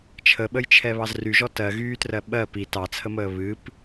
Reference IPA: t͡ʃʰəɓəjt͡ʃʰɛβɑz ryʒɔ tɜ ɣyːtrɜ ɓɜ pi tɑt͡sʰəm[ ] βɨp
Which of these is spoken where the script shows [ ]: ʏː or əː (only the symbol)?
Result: əː